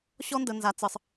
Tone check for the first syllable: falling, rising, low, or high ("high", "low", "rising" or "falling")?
high